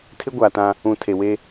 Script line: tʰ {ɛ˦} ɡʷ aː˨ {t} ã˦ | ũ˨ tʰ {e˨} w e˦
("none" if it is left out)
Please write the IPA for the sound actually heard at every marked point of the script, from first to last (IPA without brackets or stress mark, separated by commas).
ɪ˦, t, e˨